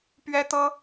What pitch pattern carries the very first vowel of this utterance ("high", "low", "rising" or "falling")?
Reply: high